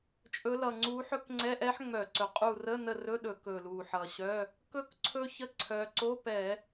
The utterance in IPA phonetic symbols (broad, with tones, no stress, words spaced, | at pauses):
t͡ʃʼɵ˨˦lʌ˨˩ ŋ͡ǀu˨˦ ħɵ˦˥kŋ͡ǀɛ˧˥˧ʔɛ˦˥ħ ŋ͡mœ˧˩˧ǀɵ˨˩qʼu˦˨ rə˧˥˧nə˦˨rɵ˧˥˧ɗɵ˧˩˧ kɵ˨˩lu˨˩ħʌ˨˩ɕœ˧˥˧ | kɵ˦˥kǀʰɵ˦˥çə˧˥˧ ǀʰœ˨˦ ǀo˧˥˧pɛ˧˩˧